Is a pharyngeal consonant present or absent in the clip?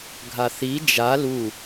absent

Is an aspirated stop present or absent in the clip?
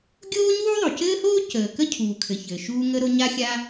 present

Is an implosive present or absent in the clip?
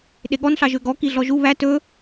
present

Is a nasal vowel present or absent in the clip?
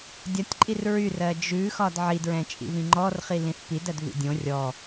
present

